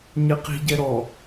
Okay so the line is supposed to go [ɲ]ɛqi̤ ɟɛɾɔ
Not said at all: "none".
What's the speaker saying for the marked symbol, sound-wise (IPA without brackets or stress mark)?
ɲ